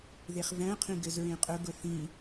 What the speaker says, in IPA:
ð e χ v æ̃ qʰ ĩ ɡ ɘ z ɹ ẽ qʼ ʊ ɡ ʊ θ ĩ

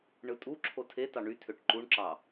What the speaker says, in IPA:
ɳ ɯ tʼ u ǁʰ o tʰ e t ɑ ɳ y tʰ ø ʈ ǃ u ɳ ǁ ɑ

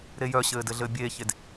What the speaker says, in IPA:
ɾ e j œ ɕ ɘː d ɘ ɮ ɘː bʲ eː ç e d

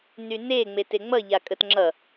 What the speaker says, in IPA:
n y n e ŋ͡m e t e ŋ͡m ʌ ʎ a kʼ ə t ŋ͡ǁ ʌ

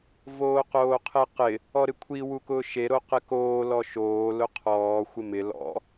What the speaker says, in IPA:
v oː q oː qʰ e q ɪ | ɔ ɾ ɪ kʷʰ i w u k ʊː ʃ e ɾ o q ɪ k oː l ɔ ʃ oː l ʊ qʰ ɔː xʷ ɪ m ɪ l ɔ̰

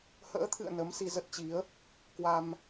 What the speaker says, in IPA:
h ə̰ː˧˥ t̪ʰ ɨ̰˧˨ ə̯ n ə˨˦ m s i˧ z ə˦˥ t̚ t͡ɕ i˨˦ ə̯ | k w a˧ m

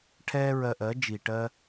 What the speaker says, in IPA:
ʈʰ ɛː˦ ɹ ɜ˧ ʔ ɜ˨˦ d͡ʒ i˨ ʈ ɜ˦

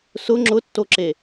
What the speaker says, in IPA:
s ʊ ŋ͡ǁ ʊ tː o ǁ e

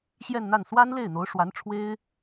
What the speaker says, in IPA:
ɕ j ɛ˥˧ n n̪ a˥˩ n s w a˥ n l e˥˩ ɪ̯ n̪ o˧˥ ʊ̯ ʂ w a˧˥ n ʈ͡ʂʰ w e˥ ɪ̯

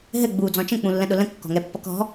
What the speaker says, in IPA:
ɦ ɘ ɡ͡b uː d͡z ɔ̃ t͡ʃ ə̃ k͡p ũ lː ə̃ ɗ ʊ l ə̃ kː ɔ̤ ŋ ɛ pː ʌ k ɔ̤

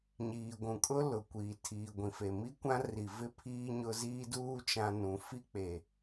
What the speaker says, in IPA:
ɲ iː˨ ɡʷ ũ˨ kʼ ʊ˦ l ʊ˨ kʷ iː˨ tʰ iː˨ ɡʷ ĩ˨ f e˨ m i˦ kʷ ã˦ r i˨ v ɪ˦ pʰ iː˦ ɲ ʊ˦ z iː˦ d uː˦ t͡ʃ ã˦ n ũ˨˦ f i˦ k͡p e˨

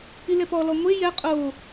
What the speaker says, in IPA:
i l ɛ p ɔ l ɔ ŋʷ e j ɛ qʼ o

